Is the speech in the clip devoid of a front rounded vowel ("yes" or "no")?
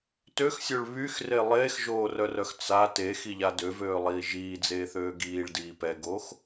no